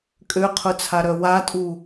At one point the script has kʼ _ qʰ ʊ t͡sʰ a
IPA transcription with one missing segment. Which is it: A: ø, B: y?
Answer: A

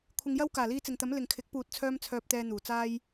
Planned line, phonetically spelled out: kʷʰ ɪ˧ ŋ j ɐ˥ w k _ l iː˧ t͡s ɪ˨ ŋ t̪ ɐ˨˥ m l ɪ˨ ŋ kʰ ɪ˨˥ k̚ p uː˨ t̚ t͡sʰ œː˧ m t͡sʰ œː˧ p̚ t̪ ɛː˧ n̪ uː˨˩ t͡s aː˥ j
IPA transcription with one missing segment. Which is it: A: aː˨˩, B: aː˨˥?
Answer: A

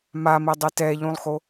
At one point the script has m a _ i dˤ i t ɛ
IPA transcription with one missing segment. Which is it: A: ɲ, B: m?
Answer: B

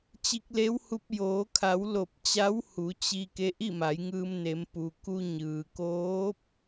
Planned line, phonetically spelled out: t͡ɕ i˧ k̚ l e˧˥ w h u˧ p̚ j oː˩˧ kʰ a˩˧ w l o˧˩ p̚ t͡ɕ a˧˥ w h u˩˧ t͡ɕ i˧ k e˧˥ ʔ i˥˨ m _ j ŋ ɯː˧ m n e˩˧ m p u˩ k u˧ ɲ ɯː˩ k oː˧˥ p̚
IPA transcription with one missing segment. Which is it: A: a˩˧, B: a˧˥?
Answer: A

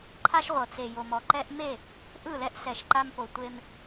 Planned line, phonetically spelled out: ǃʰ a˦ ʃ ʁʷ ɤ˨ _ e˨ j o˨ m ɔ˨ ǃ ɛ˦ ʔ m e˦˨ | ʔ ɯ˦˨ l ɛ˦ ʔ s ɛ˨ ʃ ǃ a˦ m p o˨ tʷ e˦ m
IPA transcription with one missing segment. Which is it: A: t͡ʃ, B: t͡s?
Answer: B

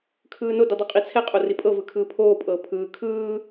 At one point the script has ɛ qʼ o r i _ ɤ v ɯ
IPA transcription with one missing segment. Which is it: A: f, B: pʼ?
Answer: B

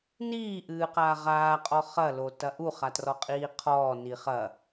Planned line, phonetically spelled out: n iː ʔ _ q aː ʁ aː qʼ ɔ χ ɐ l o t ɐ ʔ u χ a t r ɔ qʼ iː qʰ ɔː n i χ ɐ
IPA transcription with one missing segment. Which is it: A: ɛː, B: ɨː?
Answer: B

